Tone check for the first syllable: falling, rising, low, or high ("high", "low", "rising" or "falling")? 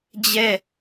falling